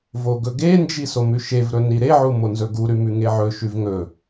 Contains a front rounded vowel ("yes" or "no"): no